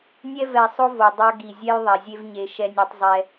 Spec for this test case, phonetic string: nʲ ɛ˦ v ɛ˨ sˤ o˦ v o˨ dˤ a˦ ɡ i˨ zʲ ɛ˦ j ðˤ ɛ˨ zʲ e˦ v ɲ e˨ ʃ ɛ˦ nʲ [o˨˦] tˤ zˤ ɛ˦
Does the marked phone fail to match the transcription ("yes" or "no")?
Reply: yes